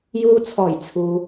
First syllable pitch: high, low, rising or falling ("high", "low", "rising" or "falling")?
low